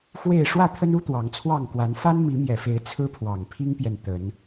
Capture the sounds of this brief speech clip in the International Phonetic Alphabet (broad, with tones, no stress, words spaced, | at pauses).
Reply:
xwe˥˨ɪ̯ ʂwä˥˨t̪ʰə˦nu˦ t̪wɑ˨˦ŋt͡sʰwɑ˥˨ŋkwa˨˦n fa˦nmi˨˦mjɛ˨˩fe˨˦ɪ̯ t͡sʰɹ̩˦pʰwɑ˨˩ŋpʰi˦ŋpjɛ˨n t̪ə˨˦n